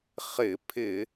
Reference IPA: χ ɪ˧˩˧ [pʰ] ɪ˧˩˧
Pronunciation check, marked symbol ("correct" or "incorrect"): correct